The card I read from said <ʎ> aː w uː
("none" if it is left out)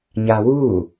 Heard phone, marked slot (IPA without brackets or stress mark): ɲ